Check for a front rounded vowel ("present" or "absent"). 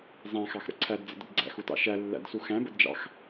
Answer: absent